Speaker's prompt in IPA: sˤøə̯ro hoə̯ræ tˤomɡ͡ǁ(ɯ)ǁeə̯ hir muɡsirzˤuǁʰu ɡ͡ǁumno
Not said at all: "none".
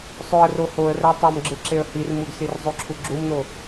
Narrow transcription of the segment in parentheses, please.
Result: ɯ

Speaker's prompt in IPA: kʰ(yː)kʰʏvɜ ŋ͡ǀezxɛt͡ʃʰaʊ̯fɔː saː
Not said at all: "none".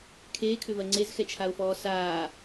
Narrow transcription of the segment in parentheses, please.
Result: eː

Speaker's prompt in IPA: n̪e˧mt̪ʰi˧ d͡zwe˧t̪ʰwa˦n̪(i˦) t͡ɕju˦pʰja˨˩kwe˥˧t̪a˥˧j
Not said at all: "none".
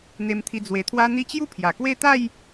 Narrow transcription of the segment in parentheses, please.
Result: i˦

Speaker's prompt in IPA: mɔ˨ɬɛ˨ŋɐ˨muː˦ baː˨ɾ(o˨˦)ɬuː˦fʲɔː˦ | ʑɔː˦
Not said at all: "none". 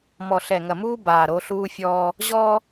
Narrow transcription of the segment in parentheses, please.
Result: o˨˦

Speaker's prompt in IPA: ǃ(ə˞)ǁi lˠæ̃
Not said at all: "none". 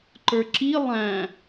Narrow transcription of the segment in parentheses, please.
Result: ə˞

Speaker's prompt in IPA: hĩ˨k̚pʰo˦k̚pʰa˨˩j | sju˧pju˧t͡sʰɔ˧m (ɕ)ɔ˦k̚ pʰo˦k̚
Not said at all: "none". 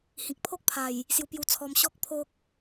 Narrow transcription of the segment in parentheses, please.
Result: ɕ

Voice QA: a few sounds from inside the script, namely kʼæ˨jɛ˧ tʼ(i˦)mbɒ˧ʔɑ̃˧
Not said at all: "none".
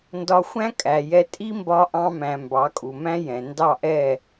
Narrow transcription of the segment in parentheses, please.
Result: i˦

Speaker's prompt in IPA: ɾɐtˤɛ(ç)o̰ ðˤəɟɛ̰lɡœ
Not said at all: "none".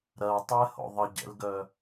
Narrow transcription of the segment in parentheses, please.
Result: h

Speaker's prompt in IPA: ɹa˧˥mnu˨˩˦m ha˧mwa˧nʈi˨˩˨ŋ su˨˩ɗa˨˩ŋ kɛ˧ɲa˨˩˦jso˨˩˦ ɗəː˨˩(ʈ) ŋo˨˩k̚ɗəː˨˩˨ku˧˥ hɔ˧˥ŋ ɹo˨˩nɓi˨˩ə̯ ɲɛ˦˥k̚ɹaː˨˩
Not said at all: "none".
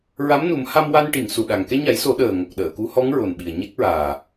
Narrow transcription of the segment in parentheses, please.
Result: none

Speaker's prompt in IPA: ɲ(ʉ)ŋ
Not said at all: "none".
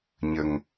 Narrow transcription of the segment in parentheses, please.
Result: ə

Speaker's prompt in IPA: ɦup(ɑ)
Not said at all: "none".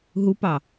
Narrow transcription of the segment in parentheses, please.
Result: ɑ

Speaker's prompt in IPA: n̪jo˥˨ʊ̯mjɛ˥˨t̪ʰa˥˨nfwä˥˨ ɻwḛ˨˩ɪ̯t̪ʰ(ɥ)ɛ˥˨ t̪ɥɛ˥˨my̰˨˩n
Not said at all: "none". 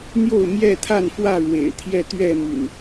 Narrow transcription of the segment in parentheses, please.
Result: j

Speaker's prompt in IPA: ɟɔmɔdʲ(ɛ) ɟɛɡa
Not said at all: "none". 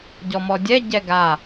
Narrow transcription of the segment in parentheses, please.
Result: ɛ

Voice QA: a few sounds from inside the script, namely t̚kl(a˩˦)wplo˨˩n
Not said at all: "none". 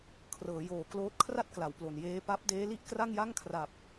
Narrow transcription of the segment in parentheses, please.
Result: a˩˦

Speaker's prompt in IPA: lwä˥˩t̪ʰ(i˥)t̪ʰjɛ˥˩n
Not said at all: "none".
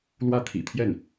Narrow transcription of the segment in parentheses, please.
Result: ḭ˨˩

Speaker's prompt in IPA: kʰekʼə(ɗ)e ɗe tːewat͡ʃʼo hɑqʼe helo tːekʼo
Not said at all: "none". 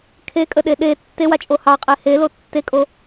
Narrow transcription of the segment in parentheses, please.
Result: ɗ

